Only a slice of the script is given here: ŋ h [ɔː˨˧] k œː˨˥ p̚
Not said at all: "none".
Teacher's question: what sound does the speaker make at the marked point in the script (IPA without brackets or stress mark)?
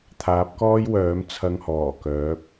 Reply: ɔː˨˩